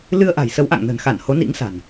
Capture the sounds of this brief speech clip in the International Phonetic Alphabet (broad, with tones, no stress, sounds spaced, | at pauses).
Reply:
l ɨ˧ ə̯ ʔ a̤˨˩ j s ə˨˦ w ʔ a̰˧˨ ŋ n ə̤˨˩ n x a˧˩ n h o˨˦ n ḭ˧˥ ŋ s a̤˨˩ n